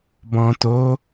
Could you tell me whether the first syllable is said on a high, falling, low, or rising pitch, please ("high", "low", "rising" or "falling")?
low